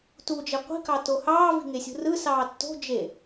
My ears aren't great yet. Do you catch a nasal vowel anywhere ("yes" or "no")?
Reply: no